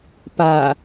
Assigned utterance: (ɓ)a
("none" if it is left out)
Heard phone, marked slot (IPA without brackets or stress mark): p